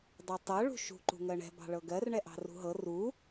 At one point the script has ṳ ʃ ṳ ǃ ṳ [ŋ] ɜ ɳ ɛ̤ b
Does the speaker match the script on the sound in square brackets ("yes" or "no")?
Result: yes